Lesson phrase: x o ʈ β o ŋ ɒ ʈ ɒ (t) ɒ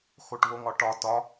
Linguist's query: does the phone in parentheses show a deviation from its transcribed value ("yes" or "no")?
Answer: no